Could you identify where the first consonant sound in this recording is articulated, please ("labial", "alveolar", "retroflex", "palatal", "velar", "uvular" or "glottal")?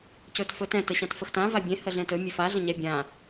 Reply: palatal